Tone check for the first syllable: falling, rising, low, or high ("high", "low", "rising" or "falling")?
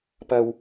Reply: low